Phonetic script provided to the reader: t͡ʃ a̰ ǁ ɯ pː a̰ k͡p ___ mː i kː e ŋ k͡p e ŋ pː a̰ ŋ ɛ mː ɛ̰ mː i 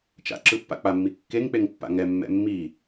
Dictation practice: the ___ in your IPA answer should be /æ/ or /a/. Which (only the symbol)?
a